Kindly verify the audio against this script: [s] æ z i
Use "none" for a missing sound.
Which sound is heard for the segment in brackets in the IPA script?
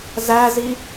z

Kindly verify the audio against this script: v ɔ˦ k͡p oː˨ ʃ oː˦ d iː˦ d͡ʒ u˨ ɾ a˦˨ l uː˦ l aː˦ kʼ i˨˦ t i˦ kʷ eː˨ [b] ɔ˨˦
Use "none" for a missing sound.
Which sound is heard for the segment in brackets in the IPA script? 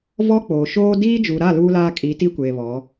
β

